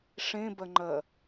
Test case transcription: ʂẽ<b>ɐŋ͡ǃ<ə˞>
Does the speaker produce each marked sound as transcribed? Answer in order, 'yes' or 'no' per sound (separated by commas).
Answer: yes, no